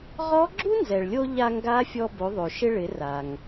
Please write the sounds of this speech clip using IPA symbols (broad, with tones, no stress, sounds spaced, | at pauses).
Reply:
ʁ ɔ˧˥ ɡ͡ǁ u˥ n z ɛ˩ ɭ lʲ o˧ ʎ a˧ ŋ ɡ a˧˥ fʲ ɔ˧ b o˩˧ ðˤ o˩ ʃ ɪ˧ ɭ ɪ˩˧ r a˩ ŋ